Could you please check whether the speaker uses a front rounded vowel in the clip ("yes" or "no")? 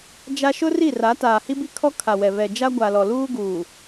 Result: no